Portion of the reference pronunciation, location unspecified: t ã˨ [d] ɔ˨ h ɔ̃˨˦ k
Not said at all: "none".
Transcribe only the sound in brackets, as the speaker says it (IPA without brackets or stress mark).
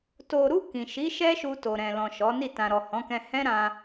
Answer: ɾ